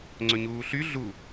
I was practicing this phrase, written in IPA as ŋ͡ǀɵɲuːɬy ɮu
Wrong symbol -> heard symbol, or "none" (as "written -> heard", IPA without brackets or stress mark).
none